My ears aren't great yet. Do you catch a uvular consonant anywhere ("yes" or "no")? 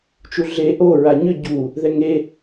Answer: no